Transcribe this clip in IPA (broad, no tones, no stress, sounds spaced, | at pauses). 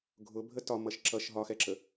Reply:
ɡʱ ʊ bʱ ə t ɒ m ʌ ʃ ǁ ʌ ʃ ɦ ɒ x ɛ ǁ ə